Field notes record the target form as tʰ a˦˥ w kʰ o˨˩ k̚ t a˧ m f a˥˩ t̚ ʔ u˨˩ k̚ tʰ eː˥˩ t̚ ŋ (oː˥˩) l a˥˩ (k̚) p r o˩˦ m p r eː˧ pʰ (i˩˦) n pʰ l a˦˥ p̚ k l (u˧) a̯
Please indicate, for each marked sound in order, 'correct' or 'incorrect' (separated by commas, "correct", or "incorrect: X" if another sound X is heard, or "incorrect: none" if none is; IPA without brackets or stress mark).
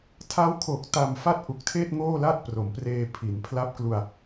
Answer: correct, incorrect: t̚, correct, correct